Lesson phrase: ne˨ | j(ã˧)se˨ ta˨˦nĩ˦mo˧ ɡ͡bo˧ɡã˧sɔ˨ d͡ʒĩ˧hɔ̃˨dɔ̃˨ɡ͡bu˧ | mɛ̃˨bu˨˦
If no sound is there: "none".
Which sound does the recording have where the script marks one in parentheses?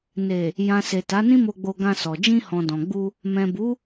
ã˨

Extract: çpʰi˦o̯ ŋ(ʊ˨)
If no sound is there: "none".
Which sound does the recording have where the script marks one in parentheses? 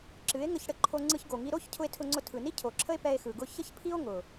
ʊ˨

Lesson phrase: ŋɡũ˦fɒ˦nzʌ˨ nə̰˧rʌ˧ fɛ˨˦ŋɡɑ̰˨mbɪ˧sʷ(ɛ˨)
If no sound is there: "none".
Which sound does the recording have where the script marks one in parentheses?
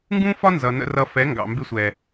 ɛ˨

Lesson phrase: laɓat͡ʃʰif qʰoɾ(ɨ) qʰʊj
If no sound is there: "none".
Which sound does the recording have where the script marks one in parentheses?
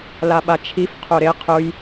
e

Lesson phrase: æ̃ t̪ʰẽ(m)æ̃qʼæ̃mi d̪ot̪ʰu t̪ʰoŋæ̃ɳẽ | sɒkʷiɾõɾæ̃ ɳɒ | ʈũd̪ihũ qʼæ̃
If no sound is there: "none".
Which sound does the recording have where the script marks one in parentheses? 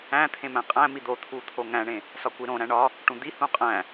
m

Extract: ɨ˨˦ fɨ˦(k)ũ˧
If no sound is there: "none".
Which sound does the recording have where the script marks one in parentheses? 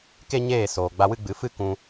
k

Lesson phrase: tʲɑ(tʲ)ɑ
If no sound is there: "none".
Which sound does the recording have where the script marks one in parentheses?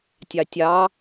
tʲ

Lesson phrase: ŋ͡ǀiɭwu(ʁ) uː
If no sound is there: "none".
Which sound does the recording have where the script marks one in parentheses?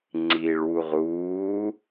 ʁ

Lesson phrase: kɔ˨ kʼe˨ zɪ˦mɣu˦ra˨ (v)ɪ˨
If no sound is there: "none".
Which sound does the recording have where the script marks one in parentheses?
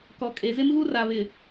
β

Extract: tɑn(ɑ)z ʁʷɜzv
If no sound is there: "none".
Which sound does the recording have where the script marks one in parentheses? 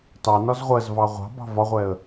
ɒ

